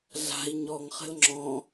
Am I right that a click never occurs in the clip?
no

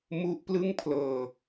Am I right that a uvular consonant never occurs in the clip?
yes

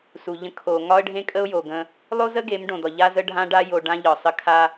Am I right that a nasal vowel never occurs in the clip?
no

